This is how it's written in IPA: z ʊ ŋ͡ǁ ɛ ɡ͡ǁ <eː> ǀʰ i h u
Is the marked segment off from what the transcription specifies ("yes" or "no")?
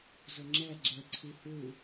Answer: yes